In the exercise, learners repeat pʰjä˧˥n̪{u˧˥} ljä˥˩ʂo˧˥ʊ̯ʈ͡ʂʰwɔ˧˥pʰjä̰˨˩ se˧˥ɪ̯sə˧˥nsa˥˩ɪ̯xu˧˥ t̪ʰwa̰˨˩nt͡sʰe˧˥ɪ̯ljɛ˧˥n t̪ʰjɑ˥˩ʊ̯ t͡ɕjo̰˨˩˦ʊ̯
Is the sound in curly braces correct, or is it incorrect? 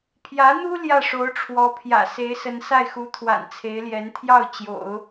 incorrect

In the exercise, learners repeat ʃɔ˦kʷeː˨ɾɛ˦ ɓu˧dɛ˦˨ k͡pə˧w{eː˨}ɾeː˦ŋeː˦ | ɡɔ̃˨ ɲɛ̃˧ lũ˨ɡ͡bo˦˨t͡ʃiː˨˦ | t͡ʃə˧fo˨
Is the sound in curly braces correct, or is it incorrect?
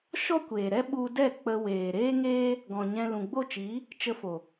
correct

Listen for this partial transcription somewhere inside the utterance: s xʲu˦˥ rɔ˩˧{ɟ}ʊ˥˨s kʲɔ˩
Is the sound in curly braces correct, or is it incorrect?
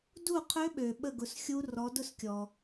incorrect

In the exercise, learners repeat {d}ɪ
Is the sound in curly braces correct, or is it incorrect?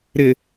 incorrect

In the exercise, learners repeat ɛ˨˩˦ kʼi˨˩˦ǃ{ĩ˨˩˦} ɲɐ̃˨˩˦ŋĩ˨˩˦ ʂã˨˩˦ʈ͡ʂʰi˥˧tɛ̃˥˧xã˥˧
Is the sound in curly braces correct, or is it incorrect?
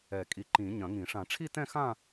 correct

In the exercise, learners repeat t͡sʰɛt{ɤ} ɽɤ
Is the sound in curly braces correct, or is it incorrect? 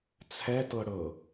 correct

